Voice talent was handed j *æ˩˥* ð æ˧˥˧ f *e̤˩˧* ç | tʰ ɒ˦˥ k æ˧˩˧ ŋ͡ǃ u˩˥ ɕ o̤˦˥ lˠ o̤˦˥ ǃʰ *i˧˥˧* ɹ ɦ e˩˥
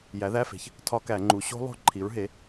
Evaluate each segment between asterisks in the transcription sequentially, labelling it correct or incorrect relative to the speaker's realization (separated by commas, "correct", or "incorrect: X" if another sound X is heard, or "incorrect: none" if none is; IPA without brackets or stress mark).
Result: correct, correct, incorrect: i˩˥